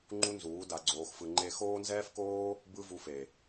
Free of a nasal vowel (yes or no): yes